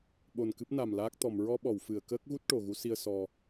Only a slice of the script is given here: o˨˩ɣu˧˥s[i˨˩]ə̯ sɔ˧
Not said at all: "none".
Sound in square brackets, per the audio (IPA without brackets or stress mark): i˧